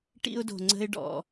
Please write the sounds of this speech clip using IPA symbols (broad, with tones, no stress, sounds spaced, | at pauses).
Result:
ʈ ḭ˦ ʊ̯ d o̤˨ ŋ͡ǀ ə̤˦ ɪ̯ ɖ ɔ̰˨